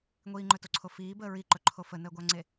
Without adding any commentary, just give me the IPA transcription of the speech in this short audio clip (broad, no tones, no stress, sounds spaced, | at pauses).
ŋʷ iː ŋ͡ǃ ɵ t o ǀʰ o f iː b əː ɹ i ǃ ɵ ǃʰ o f ə n əː ɡʷ a ŋ͡ǀ e